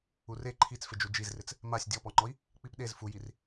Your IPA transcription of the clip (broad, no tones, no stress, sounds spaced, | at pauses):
u r e ǃʰ i t͡s f ɪ d͡ʒ u d͡ʒ i z r ɪ t͡s | m a sʲ dʲ ɔ p ɔ ŋ͡ǃ ɔ i̯ | k͡p i p ɗ e z f u j i r